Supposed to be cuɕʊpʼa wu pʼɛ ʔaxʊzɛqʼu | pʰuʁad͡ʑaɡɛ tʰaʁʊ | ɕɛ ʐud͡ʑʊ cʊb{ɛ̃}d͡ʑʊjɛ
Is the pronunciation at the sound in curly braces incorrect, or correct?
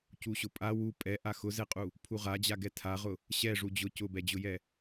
incorrect